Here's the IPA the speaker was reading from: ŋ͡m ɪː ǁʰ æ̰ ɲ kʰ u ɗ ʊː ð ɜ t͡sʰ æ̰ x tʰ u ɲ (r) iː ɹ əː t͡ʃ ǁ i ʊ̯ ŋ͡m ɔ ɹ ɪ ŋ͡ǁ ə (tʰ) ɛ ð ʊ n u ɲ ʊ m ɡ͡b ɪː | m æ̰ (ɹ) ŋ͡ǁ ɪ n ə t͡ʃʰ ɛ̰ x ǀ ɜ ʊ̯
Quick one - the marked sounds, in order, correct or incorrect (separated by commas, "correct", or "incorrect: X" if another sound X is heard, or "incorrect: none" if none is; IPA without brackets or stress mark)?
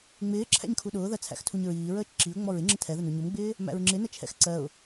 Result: incorrect: ɹ, correct, correct